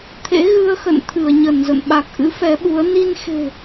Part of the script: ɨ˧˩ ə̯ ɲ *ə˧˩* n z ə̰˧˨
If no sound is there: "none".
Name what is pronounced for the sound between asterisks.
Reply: ə˧˩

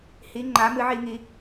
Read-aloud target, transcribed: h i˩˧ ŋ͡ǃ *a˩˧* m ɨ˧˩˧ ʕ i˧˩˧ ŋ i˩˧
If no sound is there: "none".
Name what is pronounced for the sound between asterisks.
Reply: a˩˧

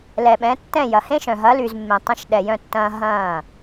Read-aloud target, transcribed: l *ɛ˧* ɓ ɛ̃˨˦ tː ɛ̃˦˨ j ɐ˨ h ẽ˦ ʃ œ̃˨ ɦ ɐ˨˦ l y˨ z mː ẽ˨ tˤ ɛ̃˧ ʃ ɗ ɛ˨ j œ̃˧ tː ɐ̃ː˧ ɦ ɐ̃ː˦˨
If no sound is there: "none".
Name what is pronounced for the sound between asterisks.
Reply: ɛ˨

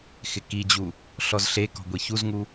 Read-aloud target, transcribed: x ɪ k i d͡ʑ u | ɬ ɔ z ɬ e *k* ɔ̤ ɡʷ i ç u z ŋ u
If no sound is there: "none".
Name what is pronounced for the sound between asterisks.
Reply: k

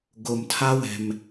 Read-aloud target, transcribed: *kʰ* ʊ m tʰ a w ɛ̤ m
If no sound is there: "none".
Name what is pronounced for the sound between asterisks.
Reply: ɡ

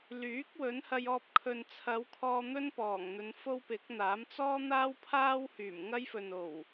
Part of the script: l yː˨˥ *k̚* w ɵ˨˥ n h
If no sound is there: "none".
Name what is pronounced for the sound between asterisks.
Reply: k̚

